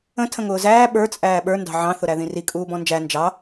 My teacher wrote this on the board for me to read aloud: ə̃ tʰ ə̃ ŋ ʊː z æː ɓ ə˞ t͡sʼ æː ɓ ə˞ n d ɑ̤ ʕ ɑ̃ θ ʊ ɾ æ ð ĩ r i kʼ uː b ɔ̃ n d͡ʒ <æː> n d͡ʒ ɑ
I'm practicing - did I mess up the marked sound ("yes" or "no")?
yes